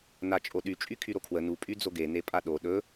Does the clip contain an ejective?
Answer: yes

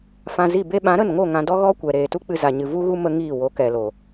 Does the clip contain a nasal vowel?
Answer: yes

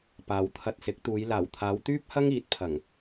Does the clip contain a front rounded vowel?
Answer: yes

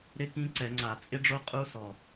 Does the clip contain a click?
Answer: yes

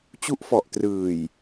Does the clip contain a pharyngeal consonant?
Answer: no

